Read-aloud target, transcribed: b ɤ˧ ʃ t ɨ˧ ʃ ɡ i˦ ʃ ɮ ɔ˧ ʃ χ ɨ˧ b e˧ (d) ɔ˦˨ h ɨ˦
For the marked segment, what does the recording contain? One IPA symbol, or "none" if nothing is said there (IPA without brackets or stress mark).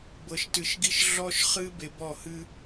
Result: b